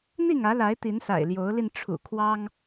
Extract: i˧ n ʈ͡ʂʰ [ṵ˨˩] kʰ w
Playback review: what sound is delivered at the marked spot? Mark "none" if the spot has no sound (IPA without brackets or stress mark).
ṵ˨˩